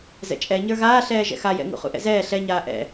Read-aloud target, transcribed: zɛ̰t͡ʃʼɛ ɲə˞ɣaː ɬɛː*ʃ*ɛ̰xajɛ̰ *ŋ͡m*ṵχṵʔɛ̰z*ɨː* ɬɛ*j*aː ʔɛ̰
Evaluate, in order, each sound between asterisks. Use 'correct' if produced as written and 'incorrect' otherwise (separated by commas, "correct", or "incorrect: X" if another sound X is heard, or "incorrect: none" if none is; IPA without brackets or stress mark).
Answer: incorrect: ʒ, incorrect: ŋ, incorrect: ɛː, incorrect: ɲ